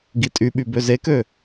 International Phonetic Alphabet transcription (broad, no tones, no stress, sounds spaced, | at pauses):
ɡ i tʼ y ɓ y b ø z e k ø